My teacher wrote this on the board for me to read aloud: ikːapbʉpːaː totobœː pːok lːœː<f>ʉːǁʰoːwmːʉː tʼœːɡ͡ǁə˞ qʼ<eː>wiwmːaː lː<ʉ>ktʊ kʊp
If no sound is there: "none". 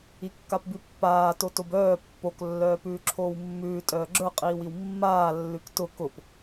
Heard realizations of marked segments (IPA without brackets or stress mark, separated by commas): p, iː, ʉ